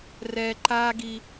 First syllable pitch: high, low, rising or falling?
low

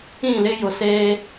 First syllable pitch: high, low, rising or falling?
falling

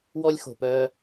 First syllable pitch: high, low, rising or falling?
high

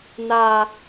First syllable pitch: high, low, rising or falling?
low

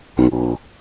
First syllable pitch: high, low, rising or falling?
low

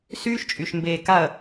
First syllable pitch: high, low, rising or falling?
high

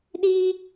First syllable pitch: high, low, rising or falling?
high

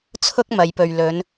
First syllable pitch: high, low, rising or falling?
high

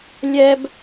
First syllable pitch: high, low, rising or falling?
high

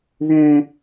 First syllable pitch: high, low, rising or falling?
high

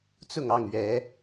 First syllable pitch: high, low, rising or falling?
falling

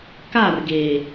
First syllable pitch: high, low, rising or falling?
falling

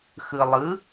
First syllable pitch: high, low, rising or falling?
low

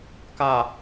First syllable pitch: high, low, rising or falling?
low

